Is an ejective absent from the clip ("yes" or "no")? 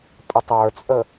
no